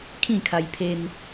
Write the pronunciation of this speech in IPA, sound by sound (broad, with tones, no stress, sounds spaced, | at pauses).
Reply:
kʰ ĩ˥˧ kʰ a˧ j pʰ e˧ n